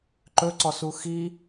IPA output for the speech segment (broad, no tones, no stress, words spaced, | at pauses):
ǃɵǀɔsu xi